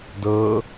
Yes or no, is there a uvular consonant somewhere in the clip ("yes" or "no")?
no